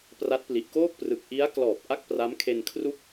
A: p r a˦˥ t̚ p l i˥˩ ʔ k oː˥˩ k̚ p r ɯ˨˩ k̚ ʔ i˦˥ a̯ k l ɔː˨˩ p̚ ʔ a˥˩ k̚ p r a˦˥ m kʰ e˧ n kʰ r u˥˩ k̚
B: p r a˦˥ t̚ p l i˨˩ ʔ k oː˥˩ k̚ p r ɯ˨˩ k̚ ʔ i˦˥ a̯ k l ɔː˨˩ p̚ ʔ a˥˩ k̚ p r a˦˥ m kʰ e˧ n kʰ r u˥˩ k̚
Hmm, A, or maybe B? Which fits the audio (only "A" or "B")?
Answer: B